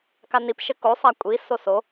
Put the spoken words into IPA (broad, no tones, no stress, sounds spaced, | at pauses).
k a n i p ʃ ɘ k o sˤ a kʷʼ i s o s o